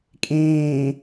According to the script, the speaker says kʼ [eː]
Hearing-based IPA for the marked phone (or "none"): ẽː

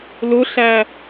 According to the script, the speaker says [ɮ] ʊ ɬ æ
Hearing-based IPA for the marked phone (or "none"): l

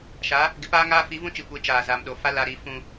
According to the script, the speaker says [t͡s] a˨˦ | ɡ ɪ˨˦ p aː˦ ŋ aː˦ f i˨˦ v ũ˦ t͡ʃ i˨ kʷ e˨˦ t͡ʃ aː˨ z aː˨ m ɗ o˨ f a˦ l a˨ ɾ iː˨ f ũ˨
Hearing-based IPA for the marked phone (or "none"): ʃ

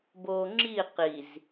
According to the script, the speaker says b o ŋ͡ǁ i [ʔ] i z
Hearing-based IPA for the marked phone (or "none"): q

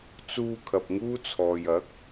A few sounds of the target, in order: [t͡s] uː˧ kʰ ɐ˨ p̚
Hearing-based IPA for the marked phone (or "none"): t͡s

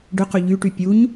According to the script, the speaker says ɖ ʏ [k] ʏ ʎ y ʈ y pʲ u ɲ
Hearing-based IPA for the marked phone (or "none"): q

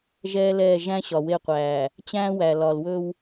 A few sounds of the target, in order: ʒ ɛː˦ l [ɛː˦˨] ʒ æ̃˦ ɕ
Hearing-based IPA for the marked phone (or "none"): ɛː˦˨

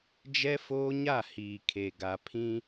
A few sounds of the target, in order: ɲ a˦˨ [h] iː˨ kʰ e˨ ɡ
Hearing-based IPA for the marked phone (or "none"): h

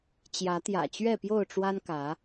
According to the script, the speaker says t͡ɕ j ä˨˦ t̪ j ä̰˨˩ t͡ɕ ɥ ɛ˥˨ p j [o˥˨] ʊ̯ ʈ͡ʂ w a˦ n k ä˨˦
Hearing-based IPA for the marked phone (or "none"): o˥˨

